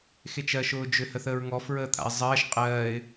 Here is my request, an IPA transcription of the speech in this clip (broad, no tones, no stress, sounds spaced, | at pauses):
x e t͡ʃ ɜ ʃ ʊː d͡ʒ ʏ h ə θ əː ɹ ŋ ɔ f ɹ əː t̪ʰ a̰ ɪ̯ zˤ ɜː ʃ qʼ ɜː ɪ̯